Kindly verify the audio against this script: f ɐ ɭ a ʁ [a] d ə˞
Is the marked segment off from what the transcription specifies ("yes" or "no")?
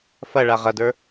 yes